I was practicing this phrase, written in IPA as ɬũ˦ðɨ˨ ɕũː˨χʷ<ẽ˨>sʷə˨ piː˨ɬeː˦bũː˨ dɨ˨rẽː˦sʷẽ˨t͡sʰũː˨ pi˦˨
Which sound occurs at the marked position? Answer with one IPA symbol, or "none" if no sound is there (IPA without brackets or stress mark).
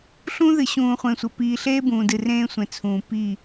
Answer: ẽ˨